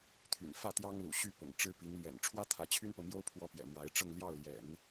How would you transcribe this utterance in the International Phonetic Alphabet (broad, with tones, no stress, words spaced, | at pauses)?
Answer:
t̪ʰy̰˨˩n fä˥˩ t̪jɑ˥ŋlṵ˨˩ ɕy˥˩ pʊ̰˨˩ŋ ʈ͡ʂɻ̩˥pi˧˥ŋ lɥɛ̰˨˩nʈ͡ʂʰwä˥ t̪ʰä˧˥t͡ɕʰy˥npɤ˨mjo˥ʊ̯ pʰwɔ˥˩pjɛ̰˨˩ mwa˧˥ɪ̯ʈ͡ʂɤ˥˧ŋ ljɑ˥˩ʊ̯ljɛ̰˨˩˦n